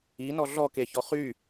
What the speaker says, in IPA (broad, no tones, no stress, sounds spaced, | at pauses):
i n ɔ ɮ ɔ k e ç ɔ χ y